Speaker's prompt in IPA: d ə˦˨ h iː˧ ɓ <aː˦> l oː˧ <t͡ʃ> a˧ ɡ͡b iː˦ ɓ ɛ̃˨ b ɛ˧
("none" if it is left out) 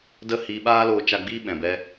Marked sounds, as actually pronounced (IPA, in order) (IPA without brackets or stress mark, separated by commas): aː˦, t͡ʃ